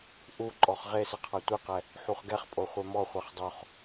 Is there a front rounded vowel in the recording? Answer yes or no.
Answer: no